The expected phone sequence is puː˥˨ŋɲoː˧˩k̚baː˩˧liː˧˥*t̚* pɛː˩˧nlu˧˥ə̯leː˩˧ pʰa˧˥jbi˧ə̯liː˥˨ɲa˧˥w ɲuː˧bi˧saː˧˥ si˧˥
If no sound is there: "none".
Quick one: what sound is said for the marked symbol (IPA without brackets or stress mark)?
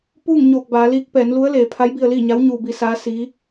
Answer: k̚